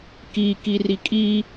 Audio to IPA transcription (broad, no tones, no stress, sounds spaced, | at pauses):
k i k i r i kʼ i